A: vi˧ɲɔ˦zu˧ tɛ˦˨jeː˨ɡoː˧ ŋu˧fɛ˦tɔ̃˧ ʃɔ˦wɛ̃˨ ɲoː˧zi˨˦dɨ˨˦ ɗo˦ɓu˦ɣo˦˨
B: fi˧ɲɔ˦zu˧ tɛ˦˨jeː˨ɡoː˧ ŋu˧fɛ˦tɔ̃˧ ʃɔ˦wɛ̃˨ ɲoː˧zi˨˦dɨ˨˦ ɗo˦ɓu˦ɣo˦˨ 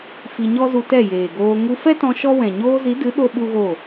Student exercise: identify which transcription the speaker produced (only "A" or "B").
B